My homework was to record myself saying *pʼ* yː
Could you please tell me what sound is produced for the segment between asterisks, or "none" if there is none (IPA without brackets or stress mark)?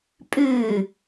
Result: pʼ